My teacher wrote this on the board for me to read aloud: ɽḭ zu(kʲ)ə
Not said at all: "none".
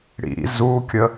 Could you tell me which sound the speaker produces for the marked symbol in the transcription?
kʲ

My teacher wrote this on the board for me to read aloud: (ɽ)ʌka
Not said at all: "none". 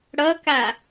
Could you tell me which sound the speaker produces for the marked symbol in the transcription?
ɽ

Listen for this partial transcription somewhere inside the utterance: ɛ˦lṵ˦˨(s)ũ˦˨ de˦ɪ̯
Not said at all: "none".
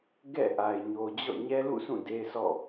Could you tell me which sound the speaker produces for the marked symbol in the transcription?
s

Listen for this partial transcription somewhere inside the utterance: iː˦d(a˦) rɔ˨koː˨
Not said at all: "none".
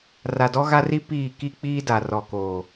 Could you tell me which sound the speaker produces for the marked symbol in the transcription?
a˨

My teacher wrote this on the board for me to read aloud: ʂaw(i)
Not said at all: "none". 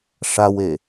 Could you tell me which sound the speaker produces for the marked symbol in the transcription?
e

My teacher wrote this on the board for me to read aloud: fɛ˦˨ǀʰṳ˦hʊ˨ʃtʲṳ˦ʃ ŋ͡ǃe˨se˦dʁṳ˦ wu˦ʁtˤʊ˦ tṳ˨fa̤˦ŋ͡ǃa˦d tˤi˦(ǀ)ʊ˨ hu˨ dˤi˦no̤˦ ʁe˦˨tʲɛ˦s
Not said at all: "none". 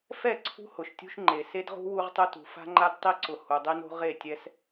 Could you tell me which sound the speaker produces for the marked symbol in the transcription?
ǀ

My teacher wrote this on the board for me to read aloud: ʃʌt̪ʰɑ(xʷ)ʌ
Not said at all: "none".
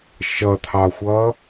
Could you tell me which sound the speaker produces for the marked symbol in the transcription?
xʷ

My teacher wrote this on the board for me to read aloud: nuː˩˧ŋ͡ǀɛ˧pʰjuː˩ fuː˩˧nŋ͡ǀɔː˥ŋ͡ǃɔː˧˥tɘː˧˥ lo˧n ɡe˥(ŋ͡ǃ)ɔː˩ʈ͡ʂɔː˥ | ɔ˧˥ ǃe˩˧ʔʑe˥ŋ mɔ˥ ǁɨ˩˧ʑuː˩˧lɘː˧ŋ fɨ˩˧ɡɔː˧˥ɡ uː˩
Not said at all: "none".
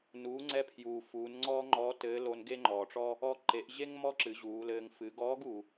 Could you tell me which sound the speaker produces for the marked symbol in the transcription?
ŋ͡ǃ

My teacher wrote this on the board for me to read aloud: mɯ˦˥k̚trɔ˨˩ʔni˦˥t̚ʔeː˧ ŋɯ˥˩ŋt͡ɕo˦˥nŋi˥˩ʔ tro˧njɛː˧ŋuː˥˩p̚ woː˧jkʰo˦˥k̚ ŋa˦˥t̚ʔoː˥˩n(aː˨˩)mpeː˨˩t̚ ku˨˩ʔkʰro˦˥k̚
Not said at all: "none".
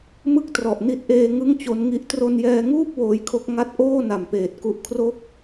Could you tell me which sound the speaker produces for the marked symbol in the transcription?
a˨˩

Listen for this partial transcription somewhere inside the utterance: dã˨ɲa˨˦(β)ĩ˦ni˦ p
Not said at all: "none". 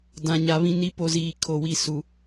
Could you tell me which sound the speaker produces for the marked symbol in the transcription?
β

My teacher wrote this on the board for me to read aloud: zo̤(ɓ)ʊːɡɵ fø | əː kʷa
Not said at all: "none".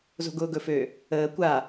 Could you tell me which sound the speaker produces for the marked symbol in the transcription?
ɡ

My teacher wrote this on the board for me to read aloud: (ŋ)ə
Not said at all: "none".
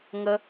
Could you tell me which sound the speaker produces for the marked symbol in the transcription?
ŋ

